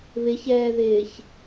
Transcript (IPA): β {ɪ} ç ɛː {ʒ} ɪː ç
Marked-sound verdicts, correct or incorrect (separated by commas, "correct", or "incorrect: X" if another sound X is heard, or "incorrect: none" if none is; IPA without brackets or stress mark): correct, incorrect: ð